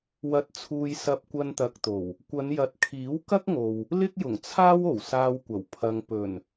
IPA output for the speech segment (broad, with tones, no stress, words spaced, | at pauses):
wɐ˧t̚t͡sʰuː˧j sɐ˧p̚kʷɐ˧nt̪ɐ˨k̚t̪o˨˩w | kʷɐ˨˧n jɐ˨t̚kʰiː˨˥w kɐ˥k̚ŋo˨w | lɪ˥k̚jʊ˨˩ŋt͡sʰaː˥wo˨˩w saː˧wkʷɐ˨˩w pʰɐ˧ŋ pɵ˨˩n